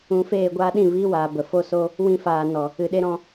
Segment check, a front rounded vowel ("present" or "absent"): absent